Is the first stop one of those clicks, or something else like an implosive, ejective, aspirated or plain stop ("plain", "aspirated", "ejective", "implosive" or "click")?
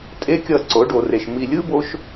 ejective